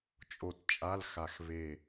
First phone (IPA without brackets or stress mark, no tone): t͡ʃʼ